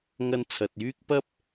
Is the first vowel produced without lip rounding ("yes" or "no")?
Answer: yes